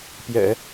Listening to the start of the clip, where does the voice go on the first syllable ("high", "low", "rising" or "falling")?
low